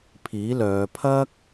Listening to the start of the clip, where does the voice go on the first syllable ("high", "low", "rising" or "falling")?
rising